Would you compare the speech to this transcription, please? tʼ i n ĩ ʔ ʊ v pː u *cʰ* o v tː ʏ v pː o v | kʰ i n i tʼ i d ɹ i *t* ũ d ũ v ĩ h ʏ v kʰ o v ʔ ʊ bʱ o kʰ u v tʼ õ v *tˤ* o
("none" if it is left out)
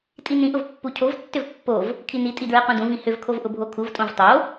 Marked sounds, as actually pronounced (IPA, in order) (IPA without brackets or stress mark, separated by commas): cʰ, q, tˤ